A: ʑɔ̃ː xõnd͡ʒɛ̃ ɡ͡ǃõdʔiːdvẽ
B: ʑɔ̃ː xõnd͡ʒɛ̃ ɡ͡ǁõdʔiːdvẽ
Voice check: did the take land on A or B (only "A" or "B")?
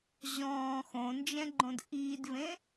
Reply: A